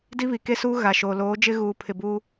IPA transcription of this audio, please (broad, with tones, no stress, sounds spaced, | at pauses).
d i˦ β i˨ k e˦ s uː˦ ɣ a˨ ʃ oː˨ l oː˨˦ d͡ʒ ɪ˦ ɣ uː˨ pʰ ɪ˨ b u˦